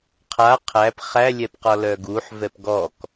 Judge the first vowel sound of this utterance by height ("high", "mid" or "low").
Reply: low